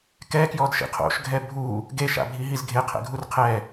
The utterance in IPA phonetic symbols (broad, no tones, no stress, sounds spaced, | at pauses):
k ɛ k j ɔ d ʃ ḭ qʰ o̰ ʃ ɡʱ ɛ bʱ u | ɡ e ʃ a̰ bʱ i ɦ i z ɡʱ e qʰ ɛ̰ ɡʱ u r qʰ ɛ